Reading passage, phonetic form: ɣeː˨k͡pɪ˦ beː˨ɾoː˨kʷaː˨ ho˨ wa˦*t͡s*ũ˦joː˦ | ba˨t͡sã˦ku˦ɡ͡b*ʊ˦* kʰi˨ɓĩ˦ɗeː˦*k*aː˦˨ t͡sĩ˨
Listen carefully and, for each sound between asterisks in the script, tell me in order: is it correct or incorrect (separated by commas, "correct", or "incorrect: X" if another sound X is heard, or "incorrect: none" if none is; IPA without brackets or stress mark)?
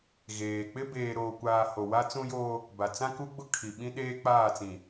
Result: correct, correct, incorrect: k͡p